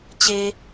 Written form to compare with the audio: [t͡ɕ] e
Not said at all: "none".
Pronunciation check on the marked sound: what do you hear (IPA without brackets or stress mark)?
t͡ɕ